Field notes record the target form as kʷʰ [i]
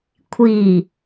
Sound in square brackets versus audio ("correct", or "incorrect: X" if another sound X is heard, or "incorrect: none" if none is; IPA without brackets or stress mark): correct